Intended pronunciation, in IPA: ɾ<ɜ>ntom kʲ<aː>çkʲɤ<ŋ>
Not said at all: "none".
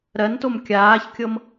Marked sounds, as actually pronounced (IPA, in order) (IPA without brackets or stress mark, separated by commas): ɜ, aː, m